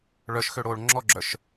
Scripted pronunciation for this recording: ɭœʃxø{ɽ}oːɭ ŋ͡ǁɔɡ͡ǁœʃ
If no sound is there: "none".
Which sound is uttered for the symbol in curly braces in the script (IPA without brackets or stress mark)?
ɽ